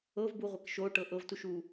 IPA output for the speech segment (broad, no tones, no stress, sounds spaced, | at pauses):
ɤ v b u ʁʷ ɛ k ʃ o ʈ ɤ ʔ ɤ v t u ʃ u